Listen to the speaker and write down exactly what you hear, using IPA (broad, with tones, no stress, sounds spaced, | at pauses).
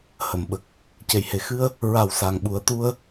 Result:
h ə˨˩˨ m ɓ ə˨˩ k̚ | c e˨˩ j h e˨˩ x ɨ˧ ə̯ | ɹ a˨˩ w s a˨˩ ŋ ɓ u˨˩˦ ə̯ t̪ u˧ ə̯